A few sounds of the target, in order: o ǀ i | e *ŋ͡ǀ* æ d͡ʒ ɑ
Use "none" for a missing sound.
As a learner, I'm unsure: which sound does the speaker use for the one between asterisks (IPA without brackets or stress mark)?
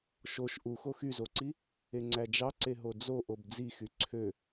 ŋ͡ǀ